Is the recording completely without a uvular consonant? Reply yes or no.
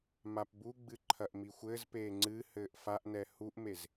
yes